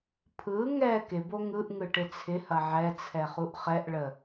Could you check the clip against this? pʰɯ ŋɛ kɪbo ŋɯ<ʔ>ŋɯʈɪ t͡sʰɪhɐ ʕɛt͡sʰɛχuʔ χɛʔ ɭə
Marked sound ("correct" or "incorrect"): correct